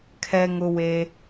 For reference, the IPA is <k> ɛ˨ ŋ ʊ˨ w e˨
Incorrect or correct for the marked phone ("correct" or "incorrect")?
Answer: incorrect